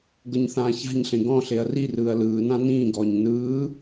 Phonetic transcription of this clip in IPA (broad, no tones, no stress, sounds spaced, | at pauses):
ɡ ɤ ɲ θ ãː ç a̤ ɲ ɬ ẽ ɡ ɔ̃ ɬ e ɐ̯ r i r ɯː ɐ̯ l ɯː n ã n ĩː ɡ ɔː ɲ n ɯː